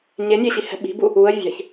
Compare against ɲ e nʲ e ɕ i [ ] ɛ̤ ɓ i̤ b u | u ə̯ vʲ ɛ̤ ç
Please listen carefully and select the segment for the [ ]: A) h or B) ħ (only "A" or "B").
A